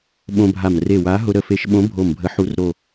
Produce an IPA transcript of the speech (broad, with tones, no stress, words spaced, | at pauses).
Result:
ɓõ˧bʱa˧˩m re˧˩wa˨˥ ɦʊ˧ɾə˧˩ fe˨˥ʃɓõ˨˥ bʱo˧˩mbʱə˨˥ħu˨˥r ɾo˧˩